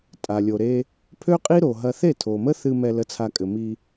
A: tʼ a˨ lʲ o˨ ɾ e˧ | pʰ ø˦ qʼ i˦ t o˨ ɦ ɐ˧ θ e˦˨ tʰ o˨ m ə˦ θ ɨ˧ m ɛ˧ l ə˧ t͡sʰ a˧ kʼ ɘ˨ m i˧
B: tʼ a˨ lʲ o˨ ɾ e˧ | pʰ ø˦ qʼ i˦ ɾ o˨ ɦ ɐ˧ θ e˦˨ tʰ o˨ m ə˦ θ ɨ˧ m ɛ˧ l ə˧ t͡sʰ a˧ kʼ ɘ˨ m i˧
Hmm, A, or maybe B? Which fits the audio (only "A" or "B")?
B